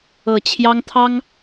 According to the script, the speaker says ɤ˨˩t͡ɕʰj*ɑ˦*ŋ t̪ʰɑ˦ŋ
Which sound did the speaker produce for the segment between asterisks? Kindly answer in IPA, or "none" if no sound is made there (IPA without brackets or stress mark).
ɑ˦